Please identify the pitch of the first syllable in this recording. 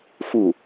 falling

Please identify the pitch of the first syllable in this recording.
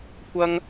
high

